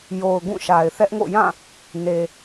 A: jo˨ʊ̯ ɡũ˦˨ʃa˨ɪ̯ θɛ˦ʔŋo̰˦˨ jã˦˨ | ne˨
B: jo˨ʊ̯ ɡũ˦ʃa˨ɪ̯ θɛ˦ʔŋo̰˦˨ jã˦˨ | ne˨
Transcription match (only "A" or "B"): A